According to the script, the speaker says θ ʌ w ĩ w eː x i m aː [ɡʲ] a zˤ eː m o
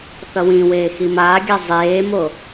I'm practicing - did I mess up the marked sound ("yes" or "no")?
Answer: no